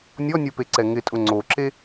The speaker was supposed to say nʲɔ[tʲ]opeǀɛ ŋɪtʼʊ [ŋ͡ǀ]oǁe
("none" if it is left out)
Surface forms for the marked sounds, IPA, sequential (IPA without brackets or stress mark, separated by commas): nʲ, ŋ͡ǀ